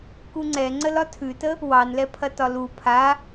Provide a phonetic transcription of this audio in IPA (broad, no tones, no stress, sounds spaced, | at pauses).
k u ŋ͡ǀ ɛ ŋ͡ǀ ə l ɒ tʰ ʉ t ə | w ɑ n l ɛ pʰ ɐ t ɒ l u pʰ a